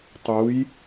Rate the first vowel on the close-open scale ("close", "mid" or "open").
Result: close